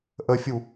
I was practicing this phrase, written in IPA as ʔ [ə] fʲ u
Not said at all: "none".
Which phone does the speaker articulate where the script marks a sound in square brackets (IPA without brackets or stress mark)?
ə